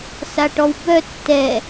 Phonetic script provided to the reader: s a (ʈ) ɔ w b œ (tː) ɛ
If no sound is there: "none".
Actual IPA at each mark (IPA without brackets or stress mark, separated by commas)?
ʈ, tː